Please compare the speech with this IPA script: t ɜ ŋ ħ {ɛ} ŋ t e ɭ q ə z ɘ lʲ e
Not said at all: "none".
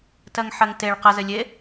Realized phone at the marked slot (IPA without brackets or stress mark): ɜ